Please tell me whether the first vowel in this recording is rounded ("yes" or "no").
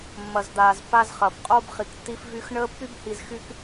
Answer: no